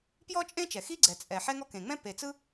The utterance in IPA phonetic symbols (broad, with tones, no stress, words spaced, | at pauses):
pjɔ˥t͡ʃʼẽ˥t͡ʃɛ˩ xi˥ɡ͡ǀɛ˩t͡sʼɛ˩ ħɛ˥ŋɔ˥ kẽ˩ŋ͡mɛ̃˥ pe˩t͡sɯ˥